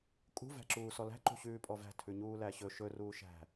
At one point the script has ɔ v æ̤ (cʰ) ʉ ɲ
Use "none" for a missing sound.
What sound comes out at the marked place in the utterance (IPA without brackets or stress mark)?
tʰ